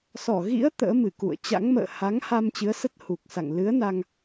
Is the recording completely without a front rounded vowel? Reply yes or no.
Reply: yes